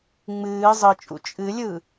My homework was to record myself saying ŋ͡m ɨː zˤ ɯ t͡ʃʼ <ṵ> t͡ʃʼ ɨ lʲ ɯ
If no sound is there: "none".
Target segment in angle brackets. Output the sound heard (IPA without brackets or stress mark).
ṵ